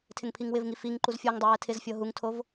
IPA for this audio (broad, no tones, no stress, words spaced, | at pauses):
tʰɪŋpʰiŋwɪvŋi fiŋ ǃuzfʲoŋdˤɪ wɛtʰɪzfʲɤ ɦuŋtʰov